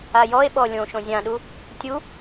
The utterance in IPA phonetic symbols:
ajɔe̯ɓɔ lʲõʃõ zʲãɗu | tʲu

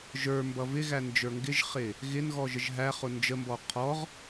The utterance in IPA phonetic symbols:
ʒə˞mbʌv ɪɣænd͡ʒə˞ ŋɡɪʒχɪ | ɣɪnɣɔʒəʒ ɦæχʊ nd͡ʒəmbɔ qʰɔʁ

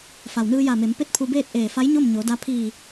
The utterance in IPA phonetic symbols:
fa˩wnɯː˧ja˧˩me˩˧m pe˥˨t̚pʰu˧beː˥˨t̚ ʔeː˧˩fa˧˥j ɲo˥˨m ɲo˩˧da˧ pʰiː˧˩

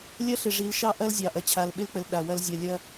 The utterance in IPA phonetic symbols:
lʲɐ˦ɬɪ˨ʐi˨˦l ʃɑ˦ʔɐ˦lzʲɑ˨ ʔɐ˨t͡ɕʰa˨lɓɪ˦lk͡pə˨l ɗa˨wɐ˦lzʲɐ˦˨ lʲɐ˦

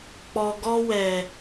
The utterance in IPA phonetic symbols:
k͡pɔ˨ɡɔ˧wɛ˨

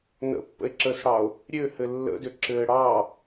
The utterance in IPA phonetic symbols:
nə̰pːə̰e̯ǁəːsɽɑo̯ | ɾʲøhɘ lːə̰dø ǁɘːɽɑ

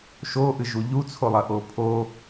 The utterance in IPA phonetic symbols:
ʃoʔɨʒu ʎut͡sʰolˠɐʔo pʰo

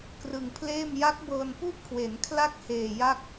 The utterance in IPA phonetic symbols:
krɯ˧ŋpʰleː˥˩m ja˦˥k̚bɤː˧npu˥˩ʔkʰwe˩˦n kʰla˥˩k̚heː˨˩ ja˥˩k̚

